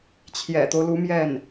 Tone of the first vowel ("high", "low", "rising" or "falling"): low